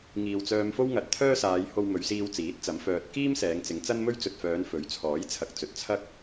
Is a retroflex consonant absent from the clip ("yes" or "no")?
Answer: yes